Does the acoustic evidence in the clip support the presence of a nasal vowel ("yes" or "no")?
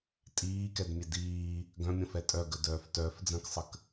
yes